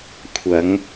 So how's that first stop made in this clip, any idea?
aspirated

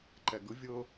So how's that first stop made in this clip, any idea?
click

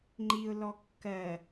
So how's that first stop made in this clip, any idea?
click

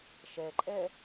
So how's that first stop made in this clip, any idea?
click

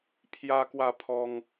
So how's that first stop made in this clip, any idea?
aspirated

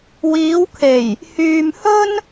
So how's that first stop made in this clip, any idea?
aspirated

